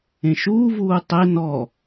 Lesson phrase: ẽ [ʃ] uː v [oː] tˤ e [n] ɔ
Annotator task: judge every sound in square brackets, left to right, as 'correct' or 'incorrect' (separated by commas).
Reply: correct, incorrect, correct